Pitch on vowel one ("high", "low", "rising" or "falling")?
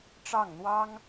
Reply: falling